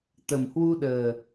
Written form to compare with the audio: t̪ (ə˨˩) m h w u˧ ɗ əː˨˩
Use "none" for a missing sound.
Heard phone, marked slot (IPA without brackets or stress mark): ə˨˩